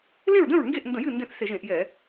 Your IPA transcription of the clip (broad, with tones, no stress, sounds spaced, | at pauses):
l ẽ˥˨ ɹ d ə̃˥˨ ɹ ŋ ɡ e˥˨ ʔ n d ə̃˧˩˧ j ɨ˥˨ n d ẽ˥˨ θ s e˧˩˧ ʒ ẽ˧˩˧ ʔ j ɛ˧˩˧